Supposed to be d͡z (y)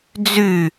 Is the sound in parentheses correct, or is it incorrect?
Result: correct